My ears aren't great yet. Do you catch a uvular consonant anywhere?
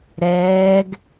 no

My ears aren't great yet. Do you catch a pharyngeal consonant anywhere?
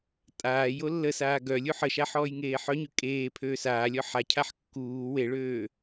yes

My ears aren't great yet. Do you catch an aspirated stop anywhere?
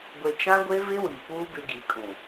no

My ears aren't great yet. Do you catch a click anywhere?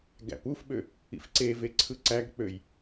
yes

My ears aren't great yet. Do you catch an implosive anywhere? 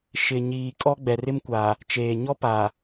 no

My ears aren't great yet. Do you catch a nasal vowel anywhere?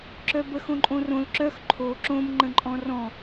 yes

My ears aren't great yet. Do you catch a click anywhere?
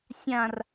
no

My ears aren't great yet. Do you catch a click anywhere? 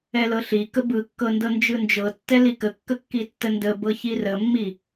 no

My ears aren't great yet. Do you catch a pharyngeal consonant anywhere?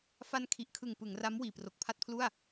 no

